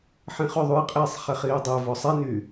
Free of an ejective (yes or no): no